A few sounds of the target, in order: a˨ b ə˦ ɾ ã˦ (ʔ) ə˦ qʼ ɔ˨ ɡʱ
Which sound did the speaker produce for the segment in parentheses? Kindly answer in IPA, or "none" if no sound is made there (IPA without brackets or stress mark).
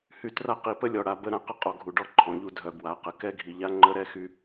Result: q